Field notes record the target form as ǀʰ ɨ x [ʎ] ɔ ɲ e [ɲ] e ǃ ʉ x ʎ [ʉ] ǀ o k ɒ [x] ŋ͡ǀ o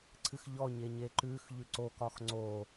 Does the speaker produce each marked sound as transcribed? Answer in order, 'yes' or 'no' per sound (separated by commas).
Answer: yes, yes, yes, yes